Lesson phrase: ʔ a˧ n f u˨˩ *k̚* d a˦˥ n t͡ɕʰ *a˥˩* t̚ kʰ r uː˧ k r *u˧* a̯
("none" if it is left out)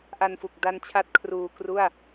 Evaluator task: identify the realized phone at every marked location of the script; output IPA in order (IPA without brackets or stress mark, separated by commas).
k̚, a˥˩, u˥˩